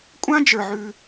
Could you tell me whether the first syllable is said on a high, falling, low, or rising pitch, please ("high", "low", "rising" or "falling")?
high